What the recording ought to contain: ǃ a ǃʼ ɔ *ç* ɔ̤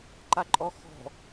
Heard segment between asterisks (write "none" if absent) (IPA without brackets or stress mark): x